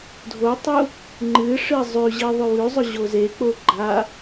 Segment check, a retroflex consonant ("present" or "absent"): present